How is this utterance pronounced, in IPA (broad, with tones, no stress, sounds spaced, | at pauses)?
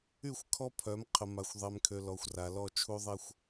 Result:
y˦˨ xʷ kʰ ɔ˦ pʰ œ˨˦ m qʰ ə˨ m a˨ xʷ ðˤ ɛ˨ m kʰ ø˨ l ɔ˨ xʷ r a˨ l ɔ˦˨ t͡ʃʰ u˦ ðˤ ɛ˦ xʷ